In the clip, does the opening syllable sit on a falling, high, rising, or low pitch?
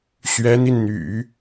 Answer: rising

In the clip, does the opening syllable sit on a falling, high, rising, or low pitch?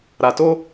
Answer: low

